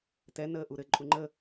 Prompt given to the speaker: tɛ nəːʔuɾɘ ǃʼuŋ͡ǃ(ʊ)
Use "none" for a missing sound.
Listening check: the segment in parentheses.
ə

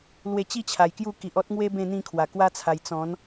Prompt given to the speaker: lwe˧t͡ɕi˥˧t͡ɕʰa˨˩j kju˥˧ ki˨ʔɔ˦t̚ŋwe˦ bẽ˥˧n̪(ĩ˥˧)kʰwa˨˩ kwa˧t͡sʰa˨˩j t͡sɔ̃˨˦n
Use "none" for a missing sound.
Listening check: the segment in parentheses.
ĩ˥˧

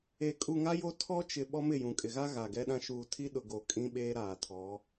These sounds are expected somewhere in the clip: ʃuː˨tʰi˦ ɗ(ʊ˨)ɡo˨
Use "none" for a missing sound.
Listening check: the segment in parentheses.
ʊ˨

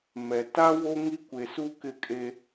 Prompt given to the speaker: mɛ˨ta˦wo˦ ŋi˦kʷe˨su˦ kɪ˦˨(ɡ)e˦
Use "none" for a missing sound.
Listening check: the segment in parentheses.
kʼ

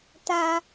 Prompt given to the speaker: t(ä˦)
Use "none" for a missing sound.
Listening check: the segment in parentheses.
ä˨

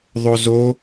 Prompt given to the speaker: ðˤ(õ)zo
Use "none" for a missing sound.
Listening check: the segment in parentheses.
o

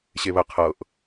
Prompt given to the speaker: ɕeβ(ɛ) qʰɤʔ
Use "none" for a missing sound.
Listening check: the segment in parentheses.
ə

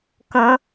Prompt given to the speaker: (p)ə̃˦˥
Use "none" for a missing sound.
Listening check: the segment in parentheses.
k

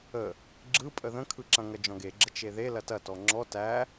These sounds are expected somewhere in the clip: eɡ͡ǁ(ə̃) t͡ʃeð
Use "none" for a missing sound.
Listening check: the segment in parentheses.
ə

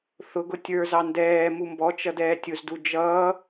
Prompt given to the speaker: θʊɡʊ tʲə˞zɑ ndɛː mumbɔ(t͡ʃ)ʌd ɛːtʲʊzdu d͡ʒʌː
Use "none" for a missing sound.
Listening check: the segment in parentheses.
t͡ʃ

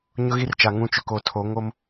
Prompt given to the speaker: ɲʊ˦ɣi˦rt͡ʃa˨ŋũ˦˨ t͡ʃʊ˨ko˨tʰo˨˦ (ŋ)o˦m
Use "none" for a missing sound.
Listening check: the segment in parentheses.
ŋ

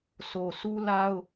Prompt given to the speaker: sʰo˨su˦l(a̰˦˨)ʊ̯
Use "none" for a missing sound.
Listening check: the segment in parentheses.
a˦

